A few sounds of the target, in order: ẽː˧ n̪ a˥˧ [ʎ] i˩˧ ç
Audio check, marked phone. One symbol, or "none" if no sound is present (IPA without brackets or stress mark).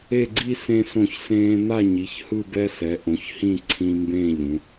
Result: ɲ